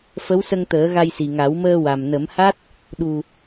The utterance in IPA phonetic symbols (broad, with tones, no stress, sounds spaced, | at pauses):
f ə˧˥ w s ə˧ ŋ t̪ əː˨˩˦ ɣ a˧ j s i˨˩ ŋ a˨˩˦ w m əː˧ w a˨˩ m n ə˨˩˦ m h a˦˥ t̚ | ɗ u˨˩